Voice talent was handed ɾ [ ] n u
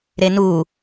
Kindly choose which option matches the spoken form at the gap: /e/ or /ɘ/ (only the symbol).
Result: e